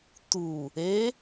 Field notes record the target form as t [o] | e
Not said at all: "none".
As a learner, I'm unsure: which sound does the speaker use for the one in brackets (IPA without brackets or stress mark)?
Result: u